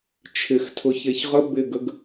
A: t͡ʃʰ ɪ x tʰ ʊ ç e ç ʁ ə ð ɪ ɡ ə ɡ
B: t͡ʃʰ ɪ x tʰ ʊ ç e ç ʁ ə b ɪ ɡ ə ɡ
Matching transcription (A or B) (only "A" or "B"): B